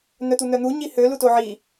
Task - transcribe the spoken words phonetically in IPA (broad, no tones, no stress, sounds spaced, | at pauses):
n̪ œ t̪ u n̪ œ n̪ u ɲ i h ø l u t o ʕ i